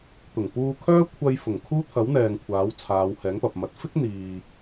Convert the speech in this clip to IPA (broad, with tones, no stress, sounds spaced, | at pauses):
t̪ ʊ˨˩ ŋ p uː˧ kʰ œː˥ kʷʰ ɐ˧ j f ʊ˨˩ ŋ kʰ uː˥ t̪ʰ ɐ˨˥ w n̪ ɛː˨ ŋ kʷʰ aː˨˥ w t͡sʰ aː˨˧ w h ɛː˨˥ ŋ p ɐ˨ p̚ m ɐ˨˥ t̚ f ɪ˥ k̚ n̪ iː˨